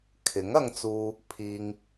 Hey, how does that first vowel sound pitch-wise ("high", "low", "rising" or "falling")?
rising